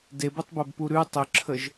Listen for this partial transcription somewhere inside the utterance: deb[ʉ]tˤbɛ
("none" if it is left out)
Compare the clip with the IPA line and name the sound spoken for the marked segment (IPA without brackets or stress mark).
u